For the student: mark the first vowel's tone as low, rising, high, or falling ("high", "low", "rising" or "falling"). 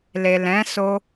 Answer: low